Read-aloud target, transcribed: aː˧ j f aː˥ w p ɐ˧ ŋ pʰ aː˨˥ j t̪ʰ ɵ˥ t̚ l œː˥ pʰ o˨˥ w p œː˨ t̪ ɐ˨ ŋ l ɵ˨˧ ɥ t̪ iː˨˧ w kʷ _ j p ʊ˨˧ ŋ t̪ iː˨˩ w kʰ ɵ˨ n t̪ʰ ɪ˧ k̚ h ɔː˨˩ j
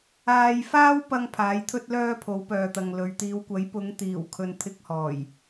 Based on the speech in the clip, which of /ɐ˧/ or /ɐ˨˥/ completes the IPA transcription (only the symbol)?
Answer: ɐ˨˥